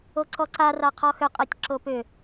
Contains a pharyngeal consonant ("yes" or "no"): no